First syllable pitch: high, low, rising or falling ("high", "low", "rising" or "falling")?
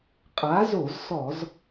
rising